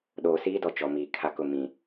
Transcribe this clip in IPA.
ɗ oː˨ s iː˦ d ɔ˨ t͡ʃ ɔ˨ m iː˨ kʰ a˦ k ʊ˦˨ m ĩ˨

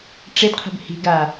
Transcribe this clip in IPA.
ʈ͡ʂ e d qʰ ə̤ b h i̤ ɡ a

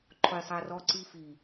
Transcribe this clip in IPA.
ǃʰ ʊ j sˤ ɪ ɐ̯ r ɔ ǀ i f i

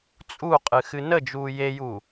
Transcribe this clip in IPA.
t͡sʼ u qʼ ɨ x ɨ n ə d͡ʒ uː j e j u

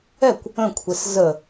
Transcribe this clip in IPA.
ɛ kʷ | ə̃ kʷʰ e s z ə

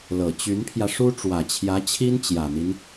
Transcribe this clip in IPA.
l ɤ˨˩ t͡ɕ y˧˥ n pʰ j ä˧ ʂ u˥ ʈ͡ʂ w ä˨˩ t͡ɕʰ j ä˧˥ t͡ɕʰ i˥ n t͡ɕ j ä˨˩ n̪ i˦ n

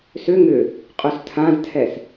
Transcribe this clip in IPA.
s ʏ ŋ ʏ | qʼ ø s tʰ ã z tʰ ɛ s

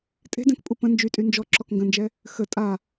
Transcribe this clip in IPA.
tʼ e̤ d ɛ̃ k pʼ u p ə̃ n d͡ʒ y tʼ y n d͡ʒ ɔ ǁ ɔ k ŋ ɡ ə̃ n d͡ʒ ɛ | x ə tʼ a

